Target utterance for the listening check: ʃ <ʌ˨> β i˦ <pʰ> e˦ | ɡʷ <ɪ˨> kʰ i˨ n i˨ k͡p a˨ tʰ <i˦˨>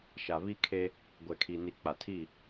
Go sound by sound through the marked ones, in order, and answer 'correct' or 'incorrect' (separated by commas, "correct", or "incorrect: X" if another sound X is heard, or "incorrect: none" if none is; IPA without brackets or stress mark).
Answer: incorrect: a˨, incorrect: kʰ, incorrect: ɛ˨, correct